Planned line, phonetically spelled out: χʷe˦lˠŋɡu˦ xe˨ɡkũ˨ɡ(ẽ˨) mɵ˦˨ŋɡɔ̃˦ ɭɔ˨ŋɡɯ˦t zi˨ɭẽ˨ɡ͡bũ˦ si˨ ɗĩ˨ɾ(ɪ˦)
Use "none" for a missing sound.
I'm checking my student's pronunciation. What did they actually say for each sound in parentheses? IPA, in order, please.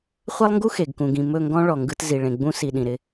ĩ˨, ɪ˦

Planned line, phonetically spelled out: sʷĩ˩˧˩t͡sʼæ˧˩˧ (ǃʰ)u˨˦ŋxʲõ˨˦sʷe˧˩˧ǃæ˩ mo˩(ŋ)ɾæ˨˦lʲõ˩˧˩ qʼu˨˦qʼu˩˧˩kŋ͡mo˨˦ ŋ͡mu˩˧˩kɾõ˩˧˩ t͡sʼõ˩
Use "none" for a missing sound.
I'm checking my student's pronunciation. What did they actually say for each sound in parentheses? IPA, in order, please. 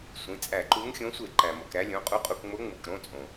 ǃ, k

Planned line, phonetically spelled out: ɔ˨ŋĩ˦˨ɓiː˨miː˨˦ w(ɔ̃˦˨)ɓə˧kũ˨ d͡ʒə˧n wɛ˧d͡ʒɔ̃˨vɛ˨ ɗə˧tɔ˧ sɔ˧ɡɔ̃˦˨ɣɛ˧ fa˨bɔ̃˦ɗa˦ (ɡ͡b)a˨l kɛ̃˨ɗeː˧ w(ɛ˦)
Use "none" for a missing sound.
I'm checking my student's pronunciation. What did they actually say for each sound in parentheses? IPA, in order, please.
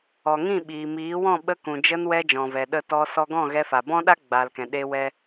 ɔ̃˦˨, ɡ͡b, ɛ˦

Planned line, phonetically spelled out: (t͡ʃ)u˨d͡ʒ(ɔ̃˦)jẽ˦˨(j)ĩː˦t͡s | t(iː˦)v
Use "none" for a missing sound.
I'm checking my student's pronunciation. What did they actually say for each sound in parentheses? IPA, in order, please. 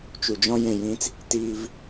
t͡ʃ, ɔ̃˦, j, iː˦

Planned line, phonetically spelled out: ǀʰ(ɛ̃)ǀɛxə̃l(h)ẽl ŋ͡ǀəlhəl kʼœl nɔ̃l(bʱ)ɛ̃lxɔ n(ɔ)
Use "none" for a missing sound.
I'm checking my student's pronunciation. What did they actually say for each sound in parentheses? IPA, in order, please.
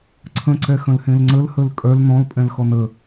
ə̃, h, pʼ, ə

